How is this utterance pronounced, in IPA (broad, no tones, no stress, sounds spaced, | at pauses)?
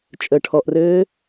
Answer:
t͡ʃʼ ə ʈʰ ɔ ʔ r ɘː